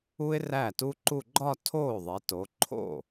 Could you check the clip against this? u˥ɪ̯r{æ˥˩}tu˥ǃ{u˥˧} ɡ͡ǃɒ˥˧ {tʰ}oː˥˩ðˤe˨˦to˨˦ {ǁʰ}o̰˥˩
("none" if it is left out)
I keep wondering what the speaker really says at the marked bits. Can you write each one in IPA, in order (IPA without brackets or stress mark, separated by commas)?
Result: æ˥˩, u˥˧, tʰ, ǃʰ